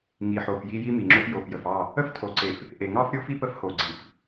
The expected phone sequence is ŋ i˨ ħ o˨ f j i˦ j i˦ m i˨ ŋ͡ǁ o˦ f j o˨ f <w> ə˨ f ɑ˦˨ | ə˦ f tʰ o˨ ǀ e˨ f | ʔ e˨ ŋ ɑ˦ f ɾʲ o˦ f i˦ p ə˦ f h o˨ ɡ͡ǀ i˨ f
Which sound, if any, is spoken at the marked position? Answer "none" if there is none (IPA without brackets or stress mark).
j